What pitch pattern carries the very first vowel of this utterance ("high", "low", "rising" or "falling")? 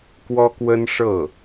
high